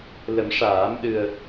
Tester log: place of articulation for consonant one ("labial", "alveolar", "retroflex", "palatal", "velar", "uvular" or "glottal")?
alveolar